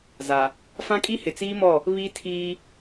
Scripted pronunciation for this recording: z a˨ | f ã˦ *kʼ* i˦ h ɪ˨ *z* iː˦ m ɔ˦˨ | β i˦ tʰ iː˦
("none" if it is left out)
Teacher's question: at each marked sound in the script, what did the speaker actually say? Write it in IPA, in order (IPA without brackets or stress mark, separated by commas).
kʼ, t͡s